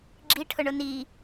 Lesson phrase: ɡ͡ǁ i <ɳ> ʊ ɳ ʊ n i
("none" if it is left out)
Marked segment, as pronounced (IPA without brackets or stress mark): ʈʰ